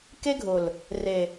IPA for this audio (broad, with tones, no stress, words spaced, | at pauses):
ke˦ɡʱʊ˨l | re˨